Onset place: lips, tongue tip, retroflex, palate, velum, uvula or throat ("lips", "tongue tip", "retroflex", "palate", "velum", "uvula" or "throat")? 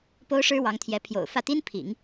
lips